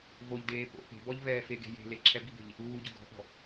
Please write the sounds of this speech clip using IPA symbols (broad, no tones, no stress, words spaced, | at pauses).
voʎdeː po̰ pe̤bɔʎ vɛːfeɡe̤ je̤le ǁʰɛbibe̤ʎ | uːɟʊ ɡɔ̤ʔɔ̤